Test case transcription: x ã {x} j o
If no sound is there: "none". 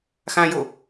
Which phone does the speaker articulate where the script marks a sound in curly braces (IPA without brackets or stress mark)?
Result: none